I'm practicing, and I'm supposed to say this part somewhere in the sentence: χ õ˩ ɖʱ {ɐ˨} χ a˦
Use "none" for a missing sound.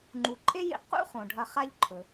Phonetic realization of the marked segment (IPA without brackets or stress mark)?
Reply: ɐ˨